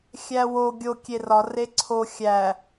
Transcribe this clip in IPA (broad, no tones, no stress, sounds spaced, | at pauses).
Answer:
xʲ æ w o ɡʲ o kʲ e r ɒ r e ǀʰ o xʲ æ